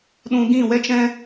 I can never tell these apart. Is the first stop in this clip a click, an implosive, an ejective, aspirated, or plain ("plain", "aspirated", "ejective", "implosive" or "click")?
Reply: implosive